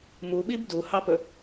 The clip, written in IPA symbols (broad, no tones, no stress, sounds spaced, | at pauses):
m u ɓ i b d u h ɑ p ɵ